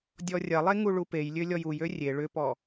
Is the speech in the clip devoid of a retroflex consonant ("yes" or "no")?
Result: no